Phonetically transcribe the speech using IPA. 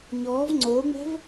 ɲ ɔː v ŋ͡ǀ oː ŋ͡m ɛ̤ v

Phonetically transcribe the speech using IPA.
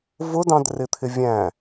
v ʊ d ɑ̃ d r ɪ t̪ʰ ɪ vʲ æ̃

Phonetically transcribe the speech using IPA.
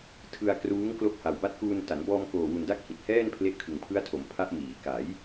tʰ ɯ˧ a̯ k r uː˦˥ ŋ k l o˦˥ k̚ h a˨˩ w b a˦˥ t̚ k uː˧ n t a˩˦ n b ɔː˧ m k oː˨˩ w u˨˩ n d a˦˥ k̚ h i˨˩ t̚ h ɛː˥˩ n pʰ l e˥˩ ʔ kʰ ɯ˨˩ ŋ pʰ ɯ˦˥ a̯ tʰ o˩˦ m pʰ a˦˥ ʔ m iː˩˦ k a˩˦ j

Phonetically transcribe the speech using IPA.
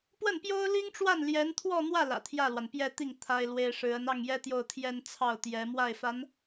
p w ə˥˩ n p j o˥ ʊ̯ l i˥ ŋ ʈ͡ʂ w a˥˩ n l j ɛ˧˥ n t̪ʰ w ɔ˥˧ n̪ w ä˥˩ l ä̰˨˩ t̪ʰ j ä˥˩ l w a˩ n p j ɛ˥˧ t̪ i˥˩ ŋ t̪ʰ a˥ ɪ̯ l w e˥ ɪ̯ ʂ ɻ̩˧˥ ə˧˥ n ɑ˥˩ ŋ j ɛ˥ t̪ j o˥˧ ʊ̯ t̪ʰ j ɛ˥˧ n t͡sʰ ɑ˥˩ ʊ̯ t̪ j ɛ˧˥ m w a˥˩ ɪ̯ f a˧˥ n

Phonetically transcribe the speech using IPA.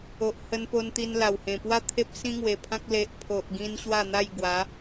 o˨ ʔ h ə˧ n p o˧ n t̪ i˧ n l a˨˩ w h ẽ˨˩ p w a˥˧ t̪ʰ e˦ p̚ s ĩ˦ ŋ w e˨˩ pʰ ã˦ k̚ l e˨ ʔ pʰ o˨ ʔ ɡ ĩ˧ n ɕ w a˥˧ n̪ a˥˧ j ɡ w a˨˦

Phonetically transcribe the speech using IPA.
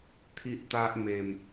t̪ʰ i˦ ʔ t̪ a˦ ʔ m e˧ m

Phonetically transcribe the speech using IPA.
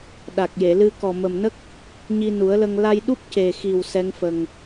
ɗ a˨˩ k̚ j e˨˩˨ l ɨ˧ k ɔ˨˩ m ə˨˩ m n ə˦˥ k̚ | ɲ i˧ n u˨˩˦ ə̯ l ə˧ ŋ l a˧ j ɗ u˦˥ p̚ c e˨˩ x i˨˩ w s ɛ˧˥ ŋ f ə˨˩ ŋ

